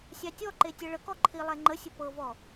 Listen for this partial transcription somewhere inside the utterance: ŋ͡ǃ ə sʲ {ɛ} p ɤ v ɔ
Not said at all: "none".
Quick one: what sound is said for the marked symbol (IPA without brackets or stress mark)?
ə